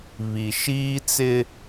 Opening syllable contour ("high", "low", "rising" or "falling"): low